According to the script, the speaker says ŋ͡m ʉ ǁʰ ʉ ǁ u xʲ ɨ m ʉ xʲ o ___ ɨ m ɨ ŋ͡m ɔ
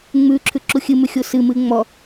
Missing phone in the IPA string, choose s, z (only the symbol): s